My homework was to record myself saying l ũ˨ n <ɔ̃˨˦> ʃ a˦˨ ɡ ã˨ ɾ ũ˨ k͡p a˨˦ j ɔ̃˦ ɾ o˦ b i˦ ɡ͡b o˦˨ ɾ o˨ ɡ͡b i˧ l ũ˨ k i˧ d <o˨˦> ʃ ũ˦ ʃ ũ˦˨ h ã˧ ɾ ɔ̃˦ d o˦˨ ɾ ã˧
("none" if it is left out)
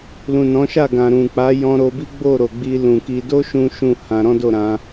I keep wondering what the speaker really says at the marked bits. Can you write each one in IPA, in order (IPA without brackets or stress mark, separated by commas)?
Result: ɔ̃˨˦, o˦